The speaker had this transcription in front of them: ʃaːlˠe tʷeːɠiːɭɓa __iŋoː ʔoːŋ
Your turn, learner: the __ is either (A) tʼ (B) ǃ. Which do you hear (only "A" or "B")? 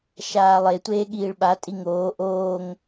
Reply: A